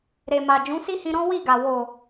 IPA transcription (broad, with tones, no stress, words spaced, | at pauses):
ɾe˨ma˨ d͡ʒũ˨˦si˦hĩ˧ɾɔ̃˦ wi˦˨ɡa˨ wo˨